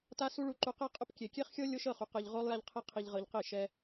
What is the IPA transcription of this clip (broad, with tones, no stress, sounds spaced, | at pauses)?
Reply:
t a˦ s u˦ ɭ u˧ ǃ u˧ q e˦ qʼ ʊ˦ p kʲ e˨ kʲ e˦ χ xʲ ɤ˦ lʲ o˦ ʃ ɤ˦˨ χ u˨ q ɤ˧ ʎ ʁ o˦ lˠ j a˦ ʎ qʰ i˦ qʰ i˧ ʎ ʁ ɤ˧ ʎ q i˦˨ ʃ ɛ˦